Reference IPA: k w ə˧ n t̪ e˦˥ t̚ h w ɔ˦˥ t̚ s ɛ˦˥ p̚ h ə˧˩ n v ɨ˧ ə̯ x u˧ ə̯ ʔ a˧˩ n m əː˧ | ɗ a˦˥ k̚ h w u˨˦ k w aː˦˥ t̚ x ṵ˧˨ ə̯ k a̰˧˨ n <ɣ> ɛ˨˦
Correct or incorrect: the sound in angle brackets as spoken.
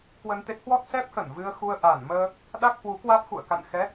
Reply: incorrect: x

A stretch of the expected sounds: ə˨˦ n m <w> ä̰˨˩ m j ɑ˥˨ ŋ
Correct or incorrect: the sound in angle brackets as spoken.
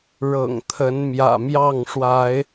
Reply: incorrect: j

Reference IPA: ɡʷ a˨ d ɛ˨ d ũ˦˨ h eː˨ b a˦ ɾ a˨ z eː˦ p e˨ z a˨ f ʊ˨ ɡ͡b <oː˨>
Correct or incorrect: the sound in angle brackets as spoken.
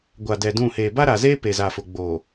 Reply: correct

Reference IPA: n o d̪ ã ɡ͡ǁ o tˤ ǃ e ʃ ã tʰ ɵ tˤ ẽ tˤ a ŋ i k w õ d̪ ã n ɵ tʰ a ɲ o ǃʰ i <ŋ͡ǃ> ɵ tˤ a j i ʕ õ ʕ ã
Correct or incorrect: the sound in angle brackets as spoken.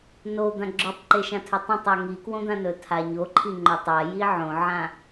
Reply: correct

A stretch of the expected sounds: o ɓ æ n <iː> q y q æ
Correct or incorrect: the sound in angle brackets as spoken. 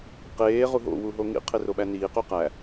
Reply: correct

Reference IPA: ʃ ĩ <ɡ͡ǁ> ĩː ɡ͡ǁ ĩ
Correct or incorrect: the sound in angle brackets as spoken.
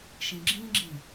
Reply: correct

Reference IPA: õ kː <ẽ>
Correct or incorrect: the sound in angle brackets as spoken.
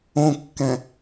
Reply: incorrect: ɛ̃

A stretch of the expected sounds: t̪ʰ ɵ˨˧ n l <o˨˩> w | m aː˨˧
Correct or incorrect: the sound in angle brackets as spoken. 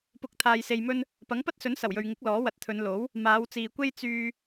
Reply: incorrect: o˨˥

